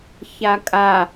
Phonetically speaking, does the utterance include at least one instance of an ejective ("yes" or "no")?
yes